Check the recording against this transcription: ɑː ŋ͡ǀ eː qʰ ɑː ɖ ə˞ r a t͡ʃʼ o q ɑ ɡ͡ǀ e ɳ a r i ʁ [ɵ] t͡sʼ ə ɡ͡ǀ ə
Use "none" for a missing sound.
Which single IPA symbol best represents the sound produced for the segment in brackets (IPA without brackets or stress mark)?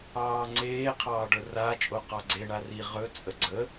ɵ